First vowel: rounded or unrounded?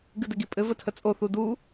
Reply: unrounded